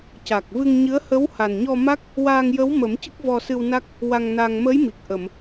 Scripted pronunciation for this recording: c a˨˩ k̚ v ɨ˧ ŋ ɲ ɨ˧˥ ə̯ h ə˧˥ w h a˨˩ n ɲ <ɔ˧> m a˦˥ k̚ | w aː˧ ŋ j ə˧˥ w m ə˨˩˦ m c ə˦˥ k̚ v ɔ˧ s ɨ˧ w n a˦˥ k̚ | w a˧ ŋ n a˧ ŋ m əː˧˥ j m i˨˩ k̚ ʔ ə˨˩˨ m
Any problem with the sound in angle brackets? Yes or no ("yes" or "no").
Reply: no